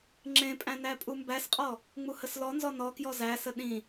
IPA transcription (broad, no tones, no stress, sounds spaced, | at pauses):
ŋ͡ǁ ẽ pʼ æ̃ n æ pʼ u m b æ s qʼ ɔ | ŋ͡m u h ə s l ɔ n z ɔ n ɔ k j ɔ z æ s ə ɗ ĩ